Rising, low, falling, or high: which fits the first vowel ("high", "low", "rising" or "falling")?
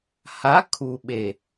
rising